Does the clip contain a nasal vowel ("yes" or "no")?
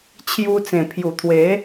yes